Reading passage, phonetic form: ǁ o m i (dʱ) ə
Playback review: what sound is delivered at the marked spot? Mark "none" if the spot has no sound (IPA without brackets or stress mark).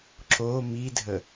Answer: dʱ